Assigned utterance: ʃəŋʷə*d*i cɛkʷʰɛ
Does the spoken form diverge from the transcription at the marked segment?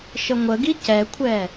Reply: yes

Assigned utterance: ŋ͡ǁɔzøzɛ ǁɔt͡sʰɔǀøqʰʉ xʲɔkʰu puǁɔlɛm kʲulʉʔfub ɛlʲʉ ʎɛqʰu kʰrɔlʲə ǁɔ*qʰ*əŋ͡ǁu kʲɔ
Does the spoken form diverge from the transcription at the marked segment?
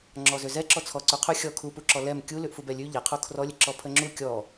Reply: yes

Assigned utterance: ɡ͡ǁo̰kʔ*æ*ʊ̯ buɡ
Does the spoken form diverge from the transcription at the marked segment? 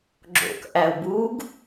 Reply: no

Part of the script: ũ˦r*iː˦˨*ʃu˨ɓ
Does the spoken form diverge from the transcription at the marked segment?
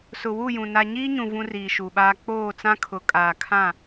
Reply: yes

